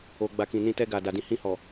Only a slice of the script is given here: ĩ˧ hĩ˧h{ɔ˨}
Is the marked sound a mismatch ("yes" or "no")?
no